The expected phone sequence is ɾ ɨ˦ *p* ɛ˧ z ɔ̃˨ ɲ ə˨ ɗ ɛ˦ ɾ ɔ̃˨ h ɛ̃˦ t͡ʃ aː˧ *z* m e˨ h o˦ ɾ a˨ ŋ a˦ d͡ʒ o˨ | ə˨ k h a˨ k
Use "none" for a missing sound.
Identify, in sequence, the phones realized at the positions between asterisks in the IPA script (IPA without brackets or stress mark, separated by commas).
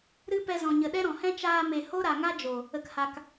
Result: p, none